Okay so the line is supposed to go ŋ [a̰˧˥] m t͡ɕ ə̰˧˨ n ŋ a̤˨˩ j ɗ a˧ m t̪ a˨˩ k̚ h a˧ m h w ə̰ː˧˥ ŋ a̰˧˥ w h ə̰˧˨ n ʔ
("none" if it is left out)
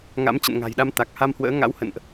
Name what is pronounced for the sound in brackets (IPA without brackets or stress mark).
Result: a̰˧˥